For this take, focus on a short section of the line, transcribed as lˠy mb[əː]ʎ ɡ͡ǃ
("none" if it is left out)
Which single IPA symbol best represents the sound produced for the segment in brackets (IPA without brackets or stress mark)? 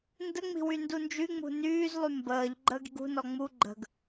əː